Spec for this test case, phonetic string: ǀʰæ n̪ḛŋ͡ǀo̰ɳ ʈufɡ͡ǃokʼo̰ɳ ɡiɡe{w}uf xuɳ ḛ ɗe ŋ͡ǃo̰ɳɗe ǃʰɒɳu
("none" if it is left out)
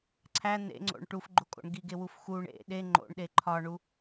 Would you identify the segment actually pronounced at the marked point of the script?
w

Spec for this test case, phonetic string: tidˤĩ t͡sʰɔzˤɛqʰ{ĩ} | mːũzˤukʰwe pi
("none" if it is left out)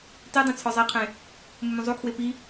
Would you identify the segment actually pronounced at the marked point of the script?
ẽ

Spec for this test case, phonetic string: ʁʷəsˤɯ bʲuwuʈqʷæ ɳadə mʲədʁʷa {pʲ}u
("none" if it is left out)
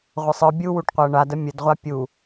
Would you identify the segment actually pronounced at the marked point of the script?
pʲ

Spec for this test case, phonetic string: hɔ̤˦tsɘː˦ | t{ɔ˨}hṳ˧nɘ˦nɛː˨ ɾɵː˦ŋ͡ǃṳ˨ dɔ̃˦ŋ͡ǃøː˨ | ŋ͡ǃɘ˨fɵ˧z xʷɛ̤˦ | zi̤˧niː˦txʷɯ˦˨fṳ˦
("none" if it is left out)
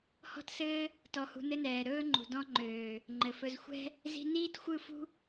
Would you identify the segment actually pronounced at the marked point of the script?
ɔ˧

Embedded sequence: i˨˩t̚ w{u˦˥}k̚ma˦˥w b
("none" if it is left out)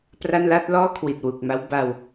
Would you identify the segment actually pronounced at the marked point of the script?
u˨˩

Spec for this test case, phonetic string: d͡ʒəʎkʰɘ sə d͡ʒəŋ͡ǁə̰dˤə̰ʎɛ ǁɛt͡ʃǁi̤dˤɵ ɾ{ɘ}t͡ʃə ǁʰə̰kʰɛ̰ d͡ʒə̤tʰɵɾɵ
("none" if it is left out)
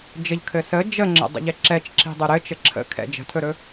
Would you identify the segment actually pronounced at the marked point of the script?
ɘ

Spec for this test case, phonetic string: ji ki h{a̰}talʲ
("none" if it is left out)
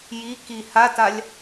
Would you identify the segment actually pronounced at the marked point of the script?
a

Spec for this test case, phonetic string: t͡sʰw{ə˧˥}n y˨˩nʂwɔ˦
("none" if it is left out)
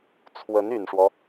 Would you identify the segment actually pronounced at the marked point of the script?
ə˧˥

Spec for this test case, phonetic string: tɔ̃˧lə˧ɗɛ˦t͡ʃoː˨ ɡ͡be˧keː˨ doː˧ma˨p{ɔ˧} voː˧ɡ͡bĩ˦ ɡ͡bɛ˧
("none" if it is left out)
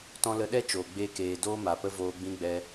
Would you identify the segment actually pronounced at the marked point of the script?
ə˧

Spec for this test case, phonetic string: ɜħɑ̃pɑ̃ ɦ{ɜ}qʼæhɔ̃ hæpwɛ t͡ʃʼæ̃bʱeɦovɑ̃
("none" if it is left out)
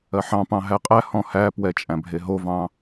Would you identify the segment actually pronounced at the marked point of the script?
æ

